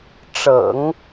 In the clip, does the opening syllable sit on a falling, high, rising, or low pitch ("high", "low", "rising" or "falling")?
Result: low